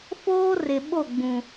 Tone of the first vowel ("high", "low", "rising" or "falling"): high